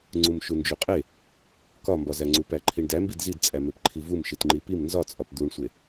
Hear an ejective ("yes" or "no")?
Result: yes